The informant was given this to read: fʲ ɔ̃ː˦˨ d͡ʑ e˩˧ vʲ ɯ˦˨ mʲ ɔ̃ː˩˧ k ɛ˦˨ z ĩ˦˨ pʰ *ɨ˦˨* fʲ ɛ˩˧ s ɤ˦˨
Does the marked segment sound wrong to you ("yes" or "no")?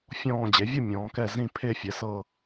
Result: yes